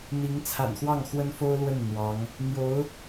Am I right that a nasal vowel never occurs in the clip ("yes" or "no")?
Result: yes